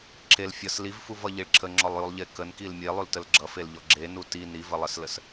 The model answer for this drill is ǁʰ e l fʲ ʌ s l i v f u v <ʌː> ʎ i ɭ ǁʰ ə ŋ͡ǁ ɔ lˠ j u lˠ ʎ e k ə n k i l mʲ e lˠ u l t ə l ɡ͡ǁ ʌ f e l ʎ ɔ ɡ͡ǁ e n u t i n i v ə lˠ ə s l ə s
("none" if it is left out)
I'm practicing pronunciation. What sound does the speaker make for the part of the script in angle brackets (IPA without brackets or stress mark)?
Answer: ʌ